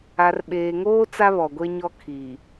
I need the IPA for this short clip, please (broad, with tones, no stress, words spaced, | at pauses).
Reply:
a˨rɓeː˨ŋoː˦ t͡sa˦βɔ˨ɡʷe˦ɲɔ˦ kʰiː˨